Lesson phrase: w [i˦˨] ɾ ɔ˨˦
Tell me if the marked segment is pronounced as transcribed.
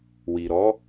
no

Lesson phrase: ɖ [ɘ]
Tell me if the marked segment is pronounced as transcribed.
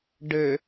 yes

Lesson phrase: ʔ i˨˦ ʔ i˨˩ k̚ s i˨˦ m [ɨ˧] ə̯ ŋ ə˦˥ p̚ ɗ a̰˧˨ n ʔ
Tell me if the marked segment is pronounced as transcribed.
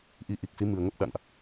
no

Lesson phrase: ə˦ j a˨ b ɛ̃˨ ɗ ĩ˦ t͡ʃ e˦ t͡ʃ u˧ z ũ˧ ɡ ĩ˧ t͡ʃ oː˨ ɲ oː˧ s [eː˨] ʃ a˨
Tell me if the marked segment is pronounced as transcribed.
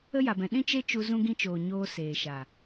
yes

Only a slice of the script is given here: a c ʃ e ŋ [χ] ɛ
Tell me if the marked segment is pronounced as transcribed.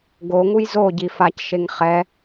yes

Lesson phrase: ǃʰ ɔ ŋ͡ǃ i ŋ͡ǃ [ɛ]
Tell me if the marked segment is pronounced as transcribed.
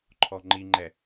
yes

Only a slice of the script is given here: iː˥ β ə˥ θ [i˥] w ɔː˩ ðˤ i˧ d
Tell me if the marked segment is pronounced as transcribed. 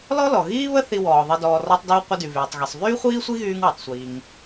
no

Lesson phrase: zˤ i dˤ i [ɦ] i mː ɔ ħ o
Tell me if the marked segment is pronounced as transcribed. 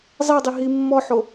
yes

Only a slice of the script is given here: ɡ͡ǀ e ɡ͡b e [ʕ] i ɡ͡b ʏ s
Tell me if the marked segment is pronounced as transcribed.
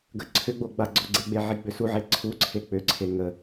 yes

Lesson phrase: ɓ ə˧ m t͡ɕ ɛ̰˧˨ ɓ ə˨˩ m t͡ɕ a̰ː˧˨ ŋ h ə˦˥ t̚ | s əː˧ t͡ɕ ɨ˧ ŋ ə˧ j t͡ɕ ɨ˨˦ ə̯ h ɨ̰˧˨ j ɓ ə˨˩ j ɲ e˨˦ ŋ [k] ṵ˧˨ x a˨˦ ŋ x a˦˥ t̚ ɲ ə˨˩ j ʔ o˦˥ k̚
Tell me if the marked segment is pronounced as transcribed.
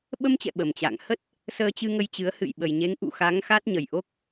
no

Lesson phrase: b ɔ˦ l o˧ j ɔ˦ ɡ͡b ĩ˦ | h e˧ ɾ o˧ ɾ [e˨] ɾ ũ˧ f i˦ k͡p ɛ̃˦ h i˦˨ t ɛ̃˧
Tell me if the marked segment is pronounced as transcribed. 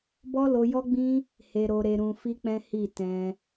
no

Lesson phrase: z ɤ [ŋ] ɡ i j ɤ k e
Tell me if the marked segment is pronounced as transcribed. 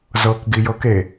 no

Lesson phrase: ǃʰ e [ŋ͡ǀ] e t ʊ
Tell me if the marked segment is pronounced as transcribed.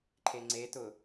yes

